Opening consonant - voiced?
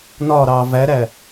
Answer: yes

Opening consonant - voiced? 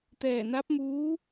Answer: no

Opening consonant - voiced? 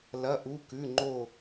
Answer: yes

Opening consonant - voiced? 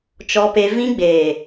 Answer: no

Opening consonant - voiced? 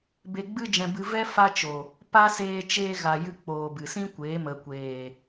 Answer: yes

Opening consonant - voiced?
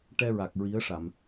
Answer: no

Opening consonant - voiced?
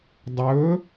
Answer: yes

